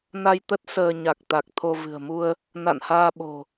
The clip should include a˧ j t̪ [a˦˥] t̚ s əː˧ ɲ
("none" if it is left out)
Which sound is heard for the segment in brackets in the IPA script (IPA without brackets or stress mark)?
ə˦˥